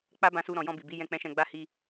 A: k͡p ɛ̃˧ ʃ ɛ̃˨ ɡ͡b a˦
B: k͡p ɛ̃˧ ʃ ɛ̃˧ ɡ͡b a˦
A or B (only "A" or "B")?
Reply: B